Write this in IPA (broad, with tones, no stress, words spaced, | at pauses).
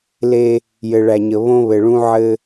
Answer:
le˦ | jɘ˨ɭæ˨ɲə˨ βõ˦βɘ˨ɭũ˦ ʕɘ˦